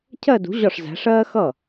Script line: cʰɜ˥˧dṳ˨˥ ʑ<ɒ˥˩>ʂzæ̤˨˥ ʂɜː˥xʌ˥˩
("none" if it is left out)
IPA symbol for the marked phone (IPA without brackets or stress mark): ɒ˥˩